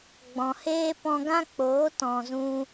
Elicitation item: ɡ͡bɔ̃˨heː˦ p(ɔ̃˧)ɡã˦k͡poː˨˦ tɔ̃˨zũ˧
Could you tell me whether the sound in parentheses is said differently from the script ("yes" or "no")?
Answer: no